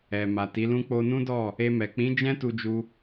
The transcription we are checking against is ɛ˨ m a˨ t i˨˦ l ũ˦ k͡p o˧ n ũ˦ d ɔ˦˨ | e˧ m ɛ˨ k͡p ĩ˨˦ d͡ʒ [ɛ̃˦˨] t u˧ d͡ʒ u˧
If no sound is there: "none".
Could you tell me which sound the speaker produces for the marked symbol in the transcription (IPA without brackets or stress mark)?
ɛ̃˦